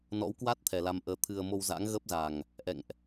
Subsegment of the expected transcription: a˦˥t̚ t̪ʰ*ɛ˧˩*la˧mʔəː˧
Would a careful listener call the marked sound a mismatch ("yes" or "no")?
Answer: yes